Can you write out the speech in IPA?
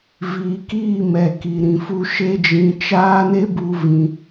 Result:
viː˨kiː˦˨ mɛ˨ki˨ɾĩ˨fu˦ ʃe˦d͡ʒĩ˧ t͡ʃaː˦ne˦bu˧ vĩ˧

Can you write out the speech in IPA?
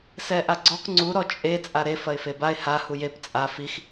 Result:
sɛʔaɡ͡ǀɔk ŋ͡ǀu ɾɔt͡ʃʼe t͡sʼaɾe fɐɪ̯febaɪ̯ ha hujep t͡sʼa fix

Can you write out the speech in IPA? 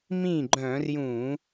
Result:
mĩ˥˩ ɡ͡ǃœ̃˧˩˧r jũ˧˩˧

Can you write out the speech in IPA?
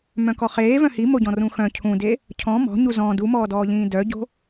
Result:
mœ̃kɔχeː vœ̃himoɟɔ̃ rũxœ̃ cʰũde | cʰɔ̃ mɔ̤ɲu zɔ̃ dumɔːdɔːʎĩː dœɟo̤

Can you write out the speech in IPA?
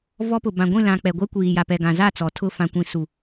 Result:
vɔ˦pʊ˨ bã˨ɡʷĩ˦˨lã˨ k͡pɛ˨ɡʷɛ˦kʷiː˨ja˨ pɛ˨ɡã˨za˦˨ t͡sɔ˨tʰʊ˦˨ fã˨kʷĩ˨ su˨

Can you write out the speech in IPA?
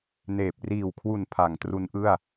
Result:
neː˨˩p̚ riː˨˩wkʰwu˨˩n pʰa˩˦ŋtru˦˥nʔɯ˥˩a̯

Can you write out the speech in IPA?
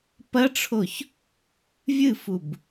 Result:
pɐʈ͡ʂʰoç | vʲɨfub

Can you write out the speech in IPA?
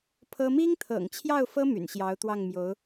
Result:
pʰɤ˥ mi˥ŋt̪ʰɤ̰˨˩ŋt͡ɕʰjɑ˥˩ʊ̯fɤ˥ my̰˨˩nɕjɑ˧˥ʊ̯t̪wɑ˥˩ŋmjo˧˥ʊ̯

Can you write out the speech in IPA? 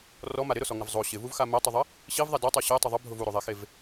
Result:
rɔma ɾɪɾʊsɔŋɪv zˤo ɕɪvuvxa mɛtˤuðˤɪ | ɕivðˤɛ dɛtˤo ɕɛtˤʊ ðˤʊbʱʊv uɾoðˤɛxev

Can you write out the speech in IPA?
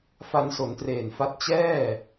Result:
fa˧nso˩˦ntreː˨˩nfa˦˥t̚ t͡ɕɛː˥˩

